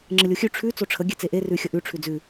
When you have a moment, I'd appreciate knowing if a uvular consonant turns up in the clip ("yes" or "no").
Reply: no